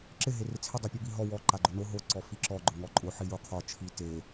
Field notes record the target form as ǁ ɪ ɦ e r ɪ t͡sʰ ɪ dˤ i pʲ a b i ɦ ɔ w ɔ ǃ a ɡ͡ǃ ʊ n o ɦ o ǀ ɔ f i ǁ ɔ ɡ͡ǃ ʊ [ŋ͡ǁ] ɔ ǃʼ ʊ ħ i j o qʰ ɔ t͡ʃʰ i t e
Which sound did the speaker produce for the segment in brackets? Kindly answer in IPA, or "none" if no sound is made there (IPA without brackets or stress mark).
ŋ